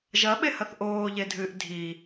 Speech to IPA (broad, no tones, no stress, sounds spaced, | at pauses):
ʒ ɐ ɓ e h ɐ θ ʔ oː ʎ e dʱ ɨː ʔ dʱ i